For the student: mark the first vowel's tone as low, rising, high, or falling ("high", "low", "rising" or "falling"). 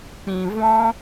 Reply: low